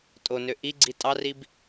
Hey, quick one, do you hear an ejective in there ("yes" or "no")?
yes